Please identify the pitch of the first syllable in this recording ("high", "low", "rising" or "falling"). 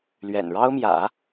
low